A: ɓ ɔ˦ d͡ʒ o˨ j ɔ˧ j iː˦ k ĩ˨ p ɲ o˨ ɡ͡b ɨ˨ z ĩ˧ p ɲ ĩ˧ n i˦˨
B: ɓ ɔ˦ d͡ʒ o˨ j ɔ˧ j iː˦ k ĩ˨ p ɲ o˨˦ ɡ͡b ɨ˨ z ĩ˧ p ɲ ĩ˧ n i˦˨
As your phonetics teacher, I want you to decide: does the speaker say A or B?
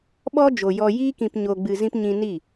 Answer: A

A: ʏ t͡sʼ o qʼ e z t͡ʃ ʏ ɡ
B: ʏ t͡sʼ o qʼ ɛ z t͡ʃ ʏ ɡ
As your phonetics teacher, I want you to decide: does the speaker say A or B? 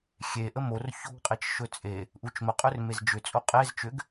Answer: A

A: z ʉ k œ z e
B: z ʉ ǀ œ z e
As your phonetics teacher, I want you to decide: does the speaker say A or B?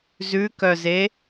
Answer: A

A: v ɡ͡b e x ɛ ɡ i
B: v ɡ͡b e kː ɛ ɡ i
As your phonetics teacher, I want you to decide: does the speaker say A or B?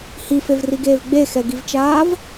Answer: A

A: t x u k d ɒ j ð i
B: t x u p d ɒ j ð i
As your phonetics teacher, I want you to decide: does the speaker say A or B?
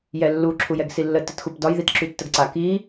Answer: B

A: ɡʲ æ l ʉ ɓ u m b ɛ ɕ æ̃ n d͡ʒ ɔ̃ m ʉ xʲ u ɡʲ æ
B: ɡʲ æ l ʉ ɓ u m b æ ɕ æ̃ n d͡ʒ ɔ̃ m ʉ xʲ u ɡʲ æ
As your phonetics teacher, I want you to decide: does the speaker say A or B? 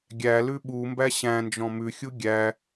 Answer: B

